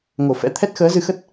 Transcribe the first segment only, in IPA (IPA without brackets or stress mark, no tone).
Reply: ŋ